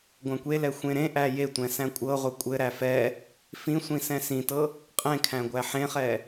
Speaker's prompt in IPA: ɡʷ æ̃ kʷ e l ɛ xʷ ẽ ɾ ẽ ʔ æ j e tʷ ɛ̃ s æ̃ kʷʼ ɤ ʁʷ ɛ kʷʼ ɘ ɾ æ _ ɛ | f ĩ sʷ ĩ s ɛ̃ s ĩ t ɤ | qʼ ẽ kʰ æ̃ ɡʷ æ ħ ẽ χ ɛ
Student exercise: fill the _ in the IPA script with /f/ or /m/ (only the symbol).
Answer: f